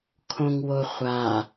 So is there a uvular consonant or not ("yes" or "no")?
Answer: yes